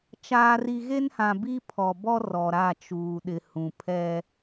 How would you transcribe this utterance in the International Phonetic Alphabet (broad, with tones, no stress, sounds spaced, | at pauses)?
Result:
t͡ʃ aː˨ r i˨ ɣ e˦ n h ã˨ b i˦ pʰ ɔ˨ b ɔ˦ r ɔ˨ ɾ a˦˨ t͡ʃ uː˨ ɗ ɪ˨ h ũ˨ pʰ ɛ˦